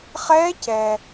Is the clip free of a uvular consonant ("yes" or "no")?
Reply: no